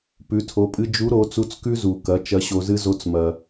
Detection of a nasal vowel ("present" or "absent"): absent